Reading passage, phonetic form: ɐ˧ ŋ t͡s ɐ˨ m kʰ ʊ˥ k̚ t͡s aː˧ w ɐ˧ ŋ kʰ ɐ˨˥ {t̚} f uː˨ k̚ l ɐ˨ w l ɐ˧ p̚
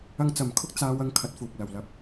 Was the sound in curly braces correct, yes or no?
yes